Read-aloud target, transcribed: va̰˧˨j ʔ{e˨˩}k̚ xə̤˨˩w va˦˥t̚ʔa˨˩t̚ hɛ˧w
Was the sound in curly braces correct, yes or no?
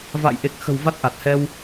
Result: yes